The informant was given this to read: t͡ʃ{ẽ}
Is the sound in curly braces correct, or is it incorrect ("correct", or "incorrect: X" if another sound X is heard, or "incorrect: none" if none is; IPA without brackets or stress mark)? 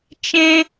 correct